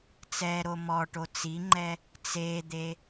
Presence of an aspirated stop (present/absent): absent